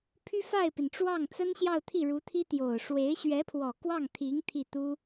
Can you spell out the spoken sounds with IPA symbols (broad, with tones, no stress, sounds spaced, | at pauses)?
pʰ y˥ f a˥˩ ɪ̯ p i˩ n ʈ͡ʂ w ɑ˥˩ ŋ t͡s ə˥ n ɕ j ɑ˥˧ ʊ̯ t̪ʰ i˥˩ ɻ u˧˥ t̪ʰ i˥ t̪ j o˨˩ ʊ̯ ʂ w e˧˥ ɪ̯ ɕ ɥ ɛ˧˥ pʰ w ɔ˨˩ k w ɑ˥˩ ŋ t̪ʰ i˧˥ ŋ t̪ʰ i˥˩ t̪ u˥